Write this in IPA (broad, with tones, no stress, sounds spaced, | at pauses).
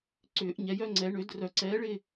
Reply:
ǀ ʏː˨˩˦ ʔ ɲ ɛ˨ j œ˥˧ ŋ͡ǀ ɛ˨˩˦ ɳ ø˨˩˦ d r œ˨˩˦ ǀ ɛː˨˥ ɭ ɪ˥˧